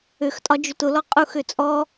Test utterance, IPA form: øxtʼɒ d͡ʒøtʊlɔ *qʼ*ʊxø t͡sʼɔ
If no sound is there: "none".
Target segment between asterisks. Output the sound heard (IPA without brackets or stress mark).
qʼ